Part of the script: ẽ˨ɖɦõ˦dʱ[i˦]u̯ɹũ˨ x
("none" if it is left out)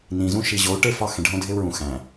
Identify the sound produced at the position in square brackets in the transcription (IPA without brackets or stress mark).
e˦